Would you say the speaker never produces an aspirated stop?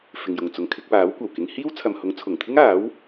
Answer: no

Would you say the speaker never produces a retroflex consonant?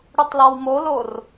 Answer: no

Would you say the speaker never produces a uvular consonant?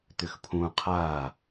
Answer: no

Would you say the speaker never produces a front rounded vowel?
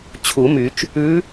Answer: no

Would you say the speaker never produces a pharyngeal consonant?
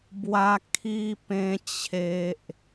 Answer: yes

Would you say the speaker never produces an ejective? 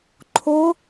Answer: yes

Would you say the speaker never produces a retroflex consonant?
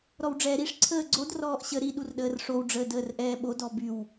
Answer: no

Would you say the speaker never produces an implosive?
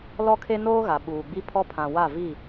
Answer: no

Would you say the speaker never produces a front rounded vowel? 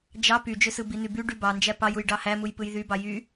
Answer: no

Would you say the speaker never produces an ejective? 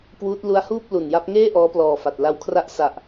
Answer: yes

